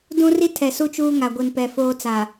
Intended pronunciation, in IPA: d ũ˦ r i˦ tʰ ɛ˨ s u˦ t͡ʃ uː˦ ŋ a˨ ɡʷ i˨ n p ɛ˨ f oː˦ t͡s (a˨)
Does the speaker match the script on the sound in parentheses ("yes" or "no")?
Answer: yes